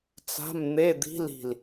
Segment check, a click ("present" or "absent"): absent